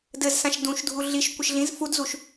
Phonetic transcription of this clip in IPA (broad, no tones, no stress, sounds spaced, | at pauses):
d ɘ z s ã ʃ d ũ ʃ dʱ u ɮ i ʃ kʷ ɘ ʃ ɮ ĩ z f u d z u ʃ